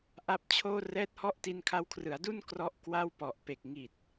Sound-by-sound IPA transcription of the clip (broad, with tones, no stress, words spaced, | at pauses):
ʔa˦˥p̚t͡ɕʰoː˥˩ rɛː˦˥t̚hɔ˦˥ʔ ti˧nkʰa˧wkʰrɯ˩˦a̯du˥˩n krɔ˦˥ʔkwa˥˩wpɔ˨˩ʔ pe˨˩k̚ ŋi˨˩t̚